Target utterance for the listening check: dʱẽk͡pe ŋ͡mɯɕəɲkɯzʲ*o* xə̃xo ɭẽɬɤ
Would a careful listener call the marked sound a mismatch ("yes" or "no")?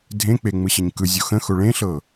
no